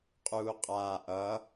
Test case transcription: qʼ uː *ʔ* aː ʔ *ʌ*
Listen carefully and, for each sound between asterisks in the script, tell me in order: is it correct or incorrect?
incorrect: qʼ, correct

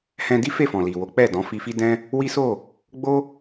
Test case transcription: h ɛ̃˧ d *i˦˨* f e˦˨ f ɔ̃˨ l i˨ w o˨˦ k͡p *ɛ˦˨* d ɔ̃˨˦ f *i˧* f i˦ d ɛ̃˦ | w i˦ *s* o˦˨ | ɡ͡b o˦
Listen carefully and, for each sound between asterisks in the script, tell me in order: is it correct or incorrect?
incorrect: i˦, correct, correct, correct

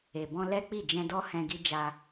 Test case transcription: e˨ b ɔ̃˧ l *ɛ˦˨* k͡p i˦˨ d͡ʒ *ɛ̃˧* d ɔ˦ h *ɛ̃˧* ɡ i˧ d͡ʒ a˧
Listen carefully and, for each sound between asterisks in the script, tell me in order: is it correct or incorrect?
incorrect: ɛ˦, correct, correct

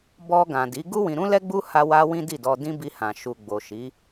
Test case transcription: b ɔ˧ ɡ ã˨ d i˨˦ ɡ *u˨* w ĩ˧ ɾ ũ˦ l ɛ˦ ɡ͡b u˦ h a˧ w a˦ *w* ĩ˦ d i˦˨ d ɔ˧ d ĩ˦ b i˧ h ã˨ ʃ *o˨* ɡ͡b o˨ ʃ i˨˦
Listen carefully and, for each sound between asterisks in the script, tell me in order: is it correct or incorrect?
incorrect: u˦, correct, incorrect: u˨

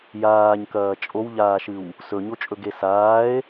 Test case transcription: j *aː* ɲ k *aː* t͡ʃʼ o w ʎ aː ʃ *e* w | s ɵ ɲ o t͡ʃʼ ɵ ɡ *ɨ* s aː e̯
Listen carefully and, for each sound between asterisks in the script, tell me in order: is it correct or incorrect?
correct, incorrect: ɐː, incorrect: ɨ, incorrect: e

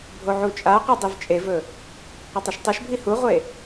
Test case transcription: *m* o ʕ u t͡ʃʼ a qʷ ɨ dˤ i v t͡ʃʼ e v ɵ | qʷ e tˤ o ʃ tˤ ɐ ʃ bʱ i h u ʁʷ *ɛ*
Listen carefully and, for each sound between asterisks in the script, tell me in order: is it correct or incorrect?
incorrect: bʱ, incorrect: e

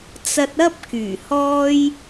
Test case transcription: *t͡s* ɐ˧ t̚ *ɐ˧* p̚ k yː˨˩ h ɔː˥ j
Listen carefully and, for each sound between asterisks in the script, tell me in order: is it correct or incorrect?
correct, incorrect: ɐ˥

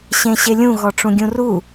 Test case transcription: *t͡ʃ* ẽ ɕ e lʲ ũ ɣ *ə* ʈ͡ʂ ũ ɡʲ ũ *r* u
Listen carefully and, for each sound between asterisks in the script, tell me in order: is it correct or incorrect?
incorrect: ɕ, incorrect: ɔ, correct

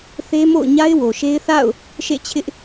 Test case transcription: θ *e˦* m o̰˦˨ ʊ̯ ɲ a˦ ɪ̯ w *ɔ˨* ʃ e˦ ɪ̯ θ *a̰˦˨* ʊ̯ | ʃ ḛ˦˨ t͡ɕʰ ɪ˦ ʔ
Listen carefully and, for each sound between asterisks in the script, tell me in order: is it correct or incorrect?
correct, incorrect: o˨, correct

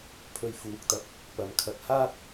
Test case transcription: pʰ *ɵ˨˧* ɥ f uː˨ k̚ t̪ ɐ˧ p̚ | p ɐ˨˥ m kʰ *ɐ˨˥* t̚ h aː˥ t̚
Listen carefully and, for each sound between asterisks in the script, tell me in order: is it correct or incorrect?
incorrect: ɵ˧, correct

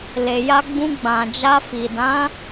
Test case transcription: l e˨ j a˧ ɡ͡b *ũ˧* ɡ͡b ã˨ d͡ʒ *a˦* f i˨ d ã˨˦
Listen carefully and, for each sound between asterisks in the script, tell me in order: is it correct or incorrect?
correct, incorrect: a˧

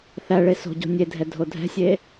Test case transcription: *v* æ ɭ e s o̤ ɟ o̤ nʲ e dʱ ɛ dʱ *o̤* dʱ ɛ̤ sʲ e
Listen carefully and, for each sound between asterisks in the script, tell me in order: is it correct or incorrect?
incorrect: θ, incorrect: o

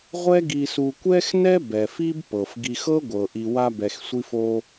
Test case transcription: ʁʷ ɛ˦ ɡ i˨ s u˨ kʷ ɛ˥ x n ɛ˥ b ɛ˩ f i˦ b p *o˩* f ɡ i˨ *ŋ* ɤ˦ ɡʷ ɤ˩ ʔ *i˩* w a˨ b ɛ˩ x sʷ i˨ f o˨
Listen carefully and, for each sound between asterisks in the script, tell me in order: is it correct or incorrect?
incorrect: ɤ˩, incorrect: x, correct

